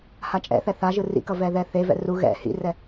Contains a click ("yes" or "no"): no